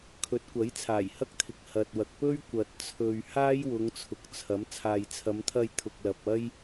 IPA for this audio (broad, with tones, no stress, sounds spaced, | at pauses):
kʰ ɵ˨˥ t̚ kʷ ɐ˨˥ j t͡sʰ aː˨˩ j h ɐ˥ k̚ t̪ʰ ɪ˨ k̚ h ɐ˨ t̚ w ɐ˨ k̚ p ɵ˥ ɥ kʷ ɐ˨ t̚ t͡sʰ ɵ˨ ɥ h aː˥ j w ʊ˨˧ ŋ t͡sʰ ʊ˨˥ k̚ t͡sʰ ɐ˨˥ m t͡sʰ aː˨ j t͡sʰ ɐ˨˧ m t̪ʰ ɐ˧ j t̪ʰ ʊ˨ k̚ l ɐ˨ p̚ ɐ˥ j